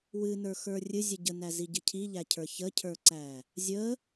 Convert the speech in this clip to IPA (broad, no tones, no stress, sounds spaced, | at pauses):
w ɨ n ə˞ x ə˞ rʲ ɨ zʲ ɨ ɟ ə n æ z i ɟ ɨ cʰ i ʎ æ cʰ ə˞ ç ə cʰ ə˞ ǀ æ | zʲ ə